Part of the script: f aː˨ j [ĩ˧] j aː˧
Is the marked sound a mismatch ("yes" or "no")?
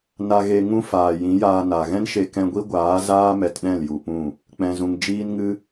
yes